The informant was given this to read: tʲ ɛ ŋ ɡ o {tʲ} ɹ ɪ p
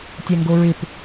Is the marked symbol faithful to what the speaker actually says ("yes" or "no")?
no